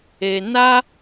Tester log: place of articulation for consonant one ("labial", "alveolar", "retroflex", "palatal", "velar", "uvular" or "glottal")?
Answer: alveolar